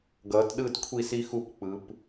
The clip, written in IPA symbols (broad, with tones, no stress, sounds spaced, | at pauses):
ɡ ʌː˨˦ t ɗ ɯ˥˨ d kʷʰ i˥˨ s i˦˥ x u˥˨ p k͡p ɯ˨˦ p